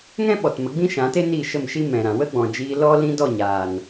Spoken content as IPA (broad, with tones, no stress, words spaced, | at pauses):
ŋɛ̃˦ɓɔ˨t mə˨˦ɡ͡bĩ˦ʃã˨˦te˦ ni˦˨ʃə˦˨mʃi˦ mɛ̃˨ɾã˨ wə˦ɡ͡bɔ̃˨ d͡ʒiː˧lɔ˦lĩ˦dɔ˦˨ ɲaː˨n